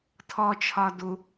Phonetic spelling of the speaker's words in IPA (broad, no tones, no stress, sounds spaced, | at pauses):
tʰ ɔ t͡ʃʰ ɒ d u